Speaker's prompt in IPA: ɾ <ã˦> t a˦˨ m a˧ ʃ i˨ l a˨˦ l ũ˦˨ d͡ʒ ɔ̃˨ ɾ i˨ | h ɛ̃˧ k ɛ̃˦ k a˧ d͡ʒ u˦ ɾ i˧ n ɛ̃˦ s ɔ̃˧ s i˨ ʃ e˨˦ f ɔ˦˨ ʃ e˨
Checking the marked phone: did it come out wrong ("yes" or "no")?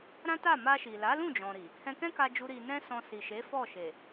no